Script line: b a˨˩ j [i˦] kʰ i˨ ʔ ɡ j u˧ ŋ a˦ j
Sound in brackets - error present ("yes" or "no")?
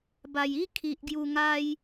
no